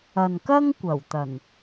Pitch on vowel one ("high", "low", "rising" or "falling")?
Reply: low